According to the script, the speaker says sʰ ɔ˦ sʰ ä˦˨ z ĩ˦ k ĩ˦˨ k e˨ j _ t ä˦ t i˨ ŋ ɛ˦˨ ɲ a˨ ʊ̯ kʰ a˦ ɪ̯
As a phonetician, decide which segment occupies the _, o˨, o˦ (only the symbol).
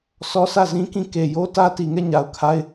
o˦